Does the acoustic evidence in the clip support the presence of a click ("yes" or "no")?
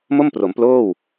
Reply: no